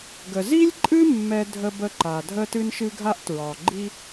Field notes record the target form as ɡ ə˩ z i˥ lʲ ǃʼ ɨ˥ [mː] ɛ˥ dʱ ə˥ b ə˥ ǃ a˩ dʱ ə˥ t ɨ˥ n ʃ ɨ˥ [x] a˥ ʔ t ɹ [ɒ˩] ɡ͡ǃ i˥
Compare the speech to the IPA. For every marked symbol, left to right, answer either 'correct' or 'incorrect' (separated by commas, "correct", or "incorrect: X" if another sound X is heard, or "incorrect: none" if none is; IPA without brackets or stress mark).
correct, incorrect: ɡʱ, correct